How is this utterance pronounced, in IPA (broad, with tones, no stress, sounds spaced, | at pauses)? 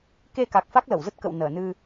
k e˧ k a˨˩ k̚ f a˦˥ k̚ l ə˧˩ w z ə˦˥ t̚ k ə̰˧˨ w n əː˧˩ n ɨ˧